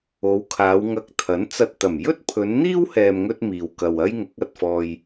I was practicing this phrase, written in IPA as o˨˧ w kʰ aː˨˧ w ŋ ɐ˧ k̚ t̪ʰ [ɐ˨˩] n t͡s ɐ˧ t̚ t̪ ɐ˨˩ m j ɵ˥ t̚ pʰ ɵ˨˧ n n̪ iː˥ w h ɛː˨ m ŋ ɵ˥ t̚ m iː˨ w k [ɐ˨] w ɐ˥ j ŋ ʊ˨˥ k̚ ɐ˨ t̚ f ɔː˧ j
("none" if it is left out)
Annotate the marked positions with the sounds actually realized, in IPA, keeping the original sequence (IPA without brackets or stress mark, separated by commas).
ɐ˨˥, ɐ˨